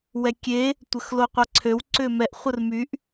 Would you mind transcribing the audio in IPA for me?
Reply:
w ɛ kʲ e | tʷ ə x l o qʷ a ǀʰ ø w ǀ ʏ m ɛ ʔ χʷ ə r m y ʔ

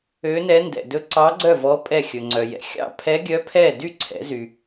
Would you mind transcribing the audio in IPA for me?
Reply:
ø˦˥ n ɛ˦˥ n d ɛ̰˧ d ɵ˦˥ ǀ ɑ˦˥ ɡ͡ǀ œ˥˧ v ɔ˦˥ pʼ ɛ˥˧ xʲ ɵ˧ ŋ͡ǀ œ˧ j ɛ̰˧ xʲ ɑ̰˥˧ pʰ ɛ˦˥ ɡʲ œ˦˥ pʰ ɛ˥˧ d y˥˧ ǀʰ ɛ̰˨˥ z y˧

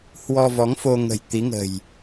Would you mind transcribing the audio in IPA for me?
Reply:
h w ɔ˧ v ɔ˨˦ ŋ f o˧ ŋ ə̤˨˩ j t̪ i˨˦ ŋ ə̤˨˩ j

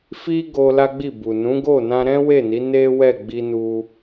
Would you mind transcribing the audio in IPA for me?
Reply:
f i˦ ɡ o˧ l a˦ ɡ͡b i˦˨ b u˨ n ũ˨˦ ɡ o˦˨ n ã˧ ɾ ɛ̃˦ w e˦˨ n i˨˦ n e˦ w ɛ˦˨ ɡ͡b i˧ n u˧

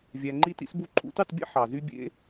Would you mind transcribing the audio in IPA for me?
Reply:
vʲ æ˧ ŋ͡ǃ i˦ t ḭ˦ s b u˦ ǃʰ ṵ˧ t y˦˨ tˤ bʲ ḛ˦ ħ ɑ˨ z y˦ bʲ ḛ˦

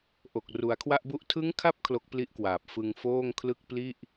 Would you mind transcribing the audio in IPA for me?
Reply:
ʔ o˨˩ k̚ r u˩˦ a̯ kʰ w a˥˩ ʔ b u˥˩ ʔ tʰ ɯ˦˥ ŋ kʰ a˦˥ p̚ kʰ l o˦˥ k̚ p l i˦˥ ʔ k w aː˨˩ p̚ f ɯ˧ ŋ f oː˥˩ ŋ kʰ l ɯ˥˩ k̚ p l i˥˩ ʔ

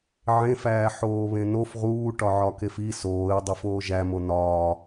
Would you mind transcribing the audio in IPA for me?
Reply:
ʕ ẽ f æː ħ oː β ẽ n o f ʁ uː ʈ ɒ ʕ ɒ k e f i s oː ɪ̯ dˤ i f oː ʒ æ m o n ɒː

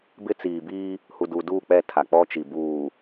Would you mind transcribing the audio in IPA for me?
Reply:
b ɪ˦ t͡s iː˨ b iː˦ | h u˨ d uː˨ d uː˦˨ k͡p ɛ˦˨ tʰ a˨ k͡p ɔ˦ t͡ʃ i˨ b uː˨

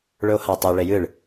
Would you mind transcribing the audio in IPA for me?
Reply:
ɭ ɵ o̯ h a tˤ e ɭ e j ɨ ɭ

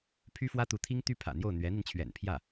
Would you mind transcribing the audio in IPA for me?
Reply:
pʰ y˥ f w ä˥ t̪ u˧˥ t̪ʰ i˥ ŋ t̪ y˥ pʰ ä̰˨˩ n̪ j o˥˩ ʊ̯ n̪ ɥ ɛ˧˥ n̪ i˧ n t͡ɕʰ ɥ ɛ̰˨˩ n pʰ j ä˥˩

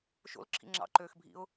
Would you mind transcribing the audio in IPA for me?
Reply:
ʃ o̰ l ǁʰ ḭ ŋ͡ǁ ɑ̰ ǃ øː x bʱ ḭ ʊ̯

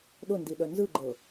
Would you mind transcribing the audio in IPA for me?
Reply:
ɗ ʊ n d i ɗ œ n z ɯ ɡ͡ǃ ɤ

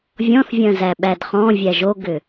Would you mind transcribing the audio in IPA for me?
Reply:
vʲ ɔ̃ θ vʲ ɐ̃ z æ ɓ æ d χ ɔ̃ vʲ æ ʒ o ɡ ʏ

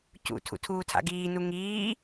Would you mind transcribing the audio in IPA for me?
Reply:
c ṵ tʰ ṵ tʰ uː tʰ a̰ ɡ iː n u ŋ iː

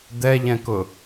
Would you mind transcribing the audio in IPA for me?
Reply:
d̪ ɛ ʎ ɛ̃ k ʊ

